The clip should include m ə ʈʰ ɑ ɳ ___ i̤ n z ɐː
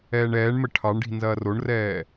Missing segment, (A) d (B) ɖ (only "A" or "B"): B